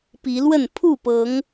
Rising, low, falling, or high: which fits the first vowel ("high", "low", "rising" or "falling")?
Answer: rising